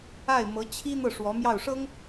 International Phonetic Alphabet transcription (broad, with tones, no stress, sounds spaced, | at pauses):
a˥˩ ɪ̯ m ɤ˧˥ t͡ɕʰ i˥ n̪ ɤ˥˩ ʂ w ɔ˧˥ m j ɑ˥˩ ʊ̯ ʂ ɤ˥ ŋ